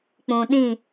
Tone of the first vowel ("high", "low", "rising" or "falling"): low